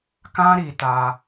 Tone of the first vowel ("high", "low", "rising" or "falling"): high